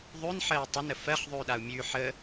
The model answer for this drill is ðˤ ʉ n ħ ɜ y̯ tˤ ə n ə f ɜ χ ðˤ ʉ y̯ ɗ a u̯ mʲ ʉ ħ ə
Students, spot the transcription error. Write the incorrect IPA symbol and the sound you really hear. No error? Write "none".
none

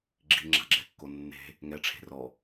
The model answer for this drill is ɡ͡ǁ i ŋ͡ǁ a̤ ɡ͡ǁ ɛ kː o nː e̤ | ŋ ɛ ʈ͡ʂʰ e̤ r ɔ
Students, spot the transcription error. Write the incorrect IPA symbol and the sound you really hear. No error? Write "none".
none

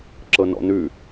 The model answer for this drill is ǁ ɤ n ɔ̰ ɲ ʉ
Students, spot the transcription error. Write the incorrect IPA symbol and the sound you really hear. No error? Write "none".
ɲ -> n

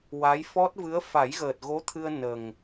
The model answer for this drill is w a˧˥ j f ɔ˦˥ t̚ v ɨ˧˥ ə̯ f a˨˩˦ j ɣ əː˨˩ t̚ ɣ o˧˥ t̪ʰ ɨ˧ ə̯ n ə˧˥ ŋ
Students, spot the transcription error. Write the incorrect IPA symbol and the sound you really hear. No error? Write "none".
ə˧˥ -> ə˨˩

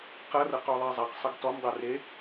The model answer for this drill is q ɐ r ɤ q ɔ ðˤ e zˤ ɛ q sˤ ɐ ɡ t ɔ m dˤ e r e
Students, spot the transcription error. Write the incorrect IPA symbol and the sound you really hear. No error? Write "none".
none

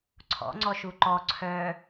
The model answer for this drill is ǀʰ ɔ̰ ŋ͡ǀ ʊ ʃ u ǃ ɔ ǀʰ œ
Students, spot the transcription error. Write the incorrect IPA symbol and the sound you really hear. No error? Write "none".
ʊ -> ɔ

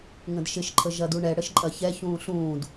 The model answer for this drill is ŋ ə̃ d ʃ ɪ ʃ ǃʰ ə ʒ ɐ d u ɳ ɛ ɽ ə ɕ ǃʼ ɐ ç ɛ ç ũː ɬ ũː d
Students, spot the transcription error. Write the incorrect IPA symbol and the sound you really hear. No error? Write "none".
ɕ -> ʃ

